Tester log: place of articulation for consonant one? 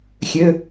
velar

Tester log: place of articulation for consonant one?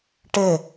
retroflex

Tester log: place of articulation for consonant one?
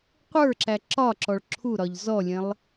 uvular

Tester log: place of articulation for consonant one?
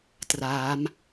alveolar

